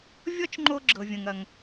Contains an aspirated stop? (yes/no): no